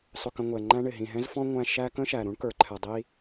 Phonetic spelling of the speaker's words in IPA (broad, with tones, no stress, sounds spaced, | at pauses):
sˤ ʊ˨ k ə̃˨ ŋʷ ɛ˩ ŋ͡ǃ æ̃˥ ɳ ɪ˩ ɦ ĩ˩ ɦ ɛ̃˥ z f ɔ̃˥ ŋʷ æ̃˦ ʃ æ˦ k ə̃˥ ʃ æ˩ ɾ ũ˥ ɳ k ə˞˩ ǃʰ ɛ˩ dˤ i˦